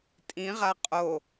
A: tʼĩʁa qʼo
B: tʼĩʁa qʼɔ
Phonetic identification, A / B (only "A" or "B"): A